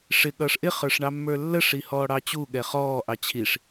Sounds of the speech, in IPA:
ʂɪ ɠʌːʂʔɪ χə˞ʂɳɑmːə˞lːə ʂihɔːɽɑt͡ɕu ɠɛχɔː ʔɑt͡ɕʰiʂ

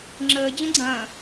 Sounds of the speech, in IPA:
ŋ͡ǁəː d͡ʑə̃ɡ͡ǀɐ̃ː

